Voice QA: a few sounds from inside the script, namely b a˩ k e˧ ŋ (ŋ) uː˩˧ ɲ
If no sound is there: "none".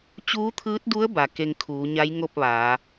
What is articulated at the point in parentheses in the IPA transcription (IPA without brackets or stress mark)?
kʰ